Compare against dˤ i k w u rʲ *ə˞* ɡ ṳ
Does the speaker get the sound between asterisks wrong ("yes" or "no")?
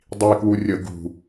yes